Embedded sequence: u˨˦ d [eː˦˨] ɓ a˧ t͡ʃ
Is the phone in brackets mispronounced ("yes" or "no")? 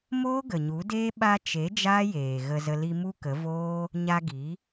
yes